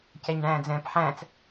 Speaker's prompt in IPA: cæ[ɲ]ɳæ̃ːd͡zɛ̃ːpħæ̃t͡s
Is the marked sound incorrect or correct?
correct